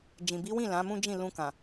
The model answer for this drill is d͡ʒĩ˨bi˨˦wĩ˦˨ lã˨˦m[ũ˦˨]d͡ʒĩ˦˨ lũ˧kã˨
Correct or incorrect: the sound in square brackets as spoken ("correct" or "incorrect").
incorrect